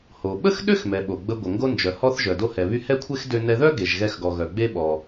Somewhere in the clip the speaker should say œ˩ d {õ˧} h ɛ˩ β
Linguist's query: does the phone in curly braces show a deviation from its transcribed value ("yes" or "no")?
yes